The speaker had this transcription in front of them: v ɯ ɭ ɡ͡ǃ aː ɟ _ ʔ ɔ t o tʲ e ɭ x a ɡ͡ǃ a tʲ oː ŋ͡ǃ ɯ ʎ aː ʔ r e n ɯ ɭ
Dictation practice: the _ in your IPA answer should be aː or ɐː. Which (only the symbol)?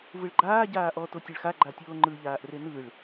aː